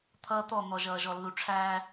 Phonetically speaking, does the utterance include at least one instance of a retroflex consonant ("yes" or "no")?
yes